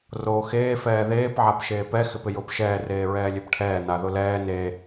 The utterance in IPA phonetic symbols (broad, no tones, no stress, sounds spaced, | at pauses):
r oː x eː f ɛː ð eː p ʕ a p ʃ eː p ɛ x ɪ p ɪ j ʊː p ʃ ɛː r eː ɹ ɛː lʲ e p ʈʰ ɛː n a ð ʊ l ɛː n e